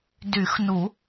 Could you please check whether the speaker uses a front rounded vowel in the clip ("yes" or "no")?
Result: yes